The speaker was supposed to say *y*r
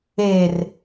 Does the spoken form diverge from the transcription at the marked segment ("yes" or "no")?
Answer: yes